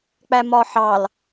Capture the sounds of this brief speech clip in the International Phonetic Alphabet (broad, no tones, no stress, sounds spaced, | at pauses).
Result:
k͡p æ m ɒ ħ ɑ l